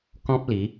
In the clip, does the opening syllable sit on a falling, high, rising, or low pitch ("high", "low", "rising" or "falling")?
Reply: high